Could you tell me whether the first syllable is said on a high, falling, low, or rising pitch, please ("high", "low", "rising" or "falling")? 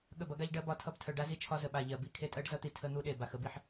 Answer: falling